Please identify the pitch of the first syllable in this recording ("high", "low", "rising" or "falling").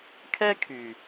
high